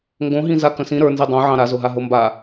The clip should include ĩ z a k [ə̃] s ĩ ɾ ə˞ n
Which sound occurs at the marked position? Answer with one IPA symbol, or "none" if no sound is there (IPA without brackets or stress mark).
ə̃